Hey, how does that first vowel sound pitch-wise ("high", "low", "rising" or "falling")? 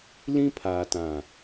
high